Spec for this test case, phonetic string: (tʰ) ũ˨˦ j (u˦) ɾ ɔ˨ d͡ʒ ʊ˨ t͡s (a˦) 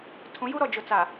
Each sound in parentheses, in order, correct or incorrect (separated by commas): correct, correct, incorrect